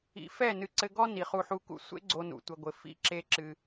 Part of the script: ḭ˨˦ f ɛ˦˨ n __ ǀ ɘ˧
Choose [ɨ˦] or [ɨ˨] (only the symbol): ɨ˨